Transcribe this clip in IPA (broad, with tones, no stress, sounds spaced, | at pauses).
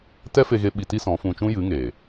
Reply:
t ɛ˦ f e˧ ɣ e˧ ɓ i˧ t i˦ s ɔ̃˨˦ f ũ˧ t͡ʃ ũ˦ j ɨ˨˦ ŋ e˨